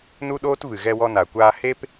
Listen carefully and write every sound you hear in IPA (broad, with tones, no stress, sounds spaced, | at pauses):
n u˦ ɗ oː˦ t v ɨ˨ ɣ ɛ˧ w ɔ˧ n a˨ kʷ aː˧ h e˦ p